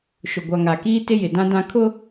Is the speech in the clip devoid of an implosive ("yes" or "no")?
yes